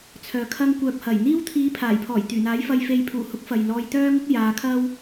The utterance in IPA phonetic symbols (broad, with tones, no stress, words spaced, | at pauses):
t͡sʰœː˨ kʰɐ˧ŋkʷœː˨p̚hɐ˨˩jn̪iː˥w t̪ʰiː˨˧pʰaː˨˩jpʰɔː˨˩j t̪yː˨˩n̪aː˨˥j fɐ˨jfe˨jpʰuː˨˩hʊ˨˥k̚ fɐ˨jlɔː˧j t̪œː˥ŋʊ˥k̚ jaː˨˧kʰɐ˥w